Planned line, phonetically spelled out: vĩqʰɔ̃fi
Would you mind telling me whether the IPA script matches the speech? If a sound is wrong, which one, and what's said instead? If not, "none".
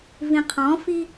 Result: none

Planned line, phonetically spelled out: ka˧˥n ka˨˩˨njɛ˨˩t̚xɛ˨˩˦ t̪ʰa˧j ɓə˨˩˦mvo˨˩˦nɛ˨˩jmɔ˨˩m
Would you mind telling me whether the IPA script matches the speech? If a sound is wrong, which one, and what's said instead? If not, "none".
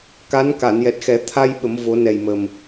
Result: ɔ˨˩ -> ə˨˩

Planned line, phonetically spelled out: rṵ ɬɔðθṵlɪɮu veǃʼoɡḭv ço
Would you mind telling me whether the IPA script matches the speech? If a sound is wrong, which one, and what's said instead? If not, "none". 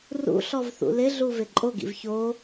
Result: ð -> v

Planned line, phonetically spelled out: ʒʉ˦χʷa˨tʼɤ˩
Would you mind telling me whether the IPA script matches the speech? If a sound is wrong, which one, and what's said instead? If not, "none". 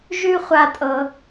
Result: none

